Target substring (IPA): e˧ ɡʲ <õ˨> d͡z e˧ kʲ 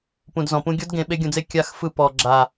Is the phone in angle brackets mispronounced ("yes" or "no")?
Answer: yes